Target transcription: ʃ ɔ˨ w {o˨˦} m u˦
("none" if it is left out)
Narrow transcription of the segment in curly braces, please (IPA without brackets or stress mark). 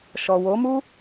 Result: o˨˦